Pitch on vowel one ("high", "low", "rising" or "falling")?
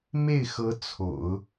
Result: falling